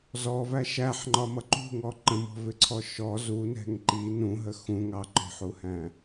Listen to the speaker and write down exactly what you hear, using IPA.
z ɔ v æ ʃ æ ħ ŋ͡ǃ ɒ m ʌ ǃ ṳ ŋ ɔ ǃ ə̃ m ɔ̤ v ɪ ǀʰ ɔ ʃ ɔ z u n ɛ̤ ŋ ǃ i n ũ ɦ ə x ũ ŋ ɑ ǃ ɔ̤ ħ u h æ̃

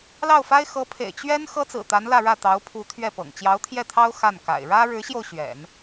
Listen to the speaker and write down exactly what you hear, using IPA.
l ɑ˥˩ ʊ̯ f a˥ ɪ̯ x ɤ˧˥ pʰ ḛ˨˩ ɪ̯ t͡ɕ ɥ ɛ˥ n x ɤ˥ t͡s ɹ̩˨˩ t̪ a˧˥ n l ä˥˧ ɻ ä˥˩ t̪ ɑ˧˥ ʊ̯ pʰ u˧˥ t̪ʰ ɥ ɛ˥˩ p ɤ̰˨˩ ŋ t͡ɕ j ɑ˧˥ ʊ̯ t̪ʰ j ɛ˥˩ t̪ʰ ɑ˥ ʊ̯ x a˥˩ n k a̰˨˩ ɪ̯ ɻ ä˥ ɻ ɻ̩˧˥ ɕ j o˧ ʊ̯ ɕ ɥ ɛ̰˨˩˦ n

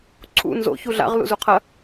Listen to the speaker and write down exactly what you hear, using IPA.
ǀʰ ṵ n z o̰ ç u ɮ a̰ ʁ l ṵ z u qʰ ɐ

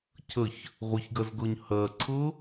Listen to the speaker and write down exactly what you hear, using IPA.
cʰ ə ç | ʁʷ ə ç ɡ ɜ z ɡ ɤ ɲ h ɜ ǀʰ ɤ

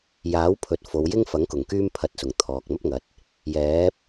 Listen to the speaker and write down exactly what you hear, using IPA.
j aː˨˥ w pʰ ɵ˨ t̚ f o˨˧ w j ɪ˥ ŋ f ɐ˨˥ ŋ k ʊ˨˩ ŋ k yː˥ m pʰ ɐ˧ t̚ s ʊ˨˩ ŋ t̪ʰ ɔː˨ k̚ m ɐ˥ p̚ ŋ ɐ˨˥ t̚ | j ɛː˨˥ p̚

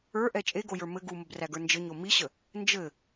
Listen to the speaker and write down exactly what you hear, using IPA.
ə˞ ʔ ɛ t͡ʃʼ e ɡ o j ə˞ m ɘ ɡ u m ə b r æ ɡ ə˞ n d͡ʒ ɘ ɲ o m i ɕ ə | n d͡ʒ ɘ

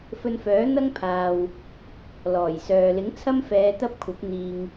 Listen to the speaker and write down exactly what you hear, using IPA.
f ɵ˧ n f œː˨˥ n̪ ɐ˥ ŋ pʰ aː˨ w | l ɔː˨˩ j s œː˨ l ɪ˨˥ ŋ t͡sʰ ɐ˥ m f ɛː˨˧ t̪ ɐ˥ p̚ kʷʰ ɐ˨˥ p̚ n̪ iː˨ ŋ

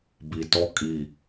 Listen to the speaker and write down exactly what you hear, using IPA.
b i t ɔ kʼ i

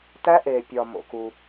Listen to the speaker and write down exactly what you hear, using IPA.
t æ˦˥ ʔ eː˩ pʲ ɒ˩ m o̰˩ k u˩

